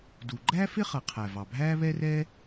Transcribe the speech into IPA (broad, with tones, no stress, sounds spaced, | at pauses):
d u˩ ɡ͡ǃ æ˥ f ɪ˥ χ ʌ˩ qʰ æ˩ v ɑ˩ bʱ æː˥ β ɛ˥ r ɛ˥